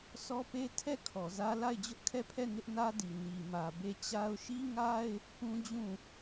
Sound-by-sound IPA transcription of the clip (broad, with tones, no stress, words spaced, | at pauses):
sɔ˦pe˦ tʰɛ˦˨ kʰɔ˨zä˦ la˦˨ɪ̯d͡ʑʊ˦ʔkʰɛ˦˨pʰɛ˦˨ nɪ˦ʔnä˦di˨ ni˨mä˨ be˦˨ t͡ɕa˦ʊ̯ ʃi˦ŋa˦ɪ̯ | pũ˦d͡ʑũ˦˨